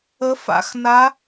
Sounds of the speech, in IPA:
ə˧˥fa̰˧˥xna˧˥

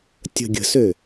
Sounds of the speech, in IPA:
tʲə̤ ɡʲə̤sø

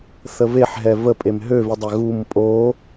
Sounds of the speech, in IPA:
θəveħ ɦɛvəpʼem ɦøvidˤɛ ɣum pʼo

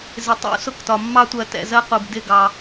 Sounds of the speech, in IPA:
zɪ˨tˤṵ˦sʊ˧ktɒ˨ mːɑ˦tʷɜ˧tɛ̰˧zɜ˦ qu˨b dɪ˦˨ɡɑ˧

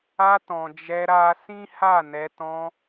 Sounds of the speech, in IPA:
a˧ tɔ̃˨d͡ʒɛ˧ɾa˧ sĩ˦ha˦˨nɛ˧ tɔ̃˧

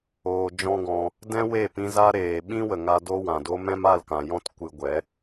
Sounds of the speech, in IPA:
oː˧d͡ʒɔ̃˦ɡɔ̃˧ | dɛ̃˦ we˦˨pĩ˧za˦ɾeː˨ ɓĩ˦wə˨ŋa˧ do˦wã˨do˦ mɛ̃˦ma˦˨lkã˨jɔ̃˦t kʷɨ˧ɡʷɛ˨˦

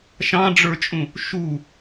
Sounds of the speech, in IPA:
ʃɑ̃ɖ͡ʐə˞t͡ʃʼũ | ʃu

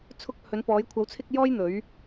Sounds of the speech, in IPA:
t͡sʰʊ˧k̚hɵ˨˧npɔː˨˧j kʷʰɐ˨˧wt͡sʰɪ˧k̚ jɔː˥j n̪ɵ˨˧ɥ

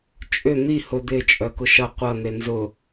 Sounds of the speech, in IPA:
t͡ʃʼʏ n̪i hʊ d̪ɪ t͡ʃʼœkʊʃɐ qʷɐ n̪enzʊ

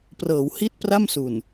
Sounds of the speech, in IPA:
prɤː˩˦whi˦˥t̚ pra˥˩msu˨˩n

